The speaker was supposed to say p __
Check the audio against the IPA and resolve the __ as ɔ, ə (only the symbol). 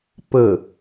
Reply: ə